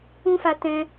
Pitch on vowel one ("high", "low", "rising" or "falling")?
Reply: high